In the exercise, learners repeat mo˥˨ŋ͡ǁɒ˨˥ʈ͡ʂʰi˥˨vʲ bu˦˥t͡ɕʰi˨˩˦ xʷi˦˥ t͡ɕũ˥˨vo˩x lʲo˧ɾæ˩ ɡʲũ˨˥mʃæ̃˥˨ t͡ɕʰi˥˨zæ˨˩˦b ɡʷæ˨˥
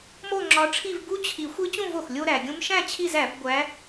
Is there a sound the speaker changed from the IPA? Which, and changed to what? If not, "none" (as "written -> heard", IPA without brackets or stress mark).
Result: vʲ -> v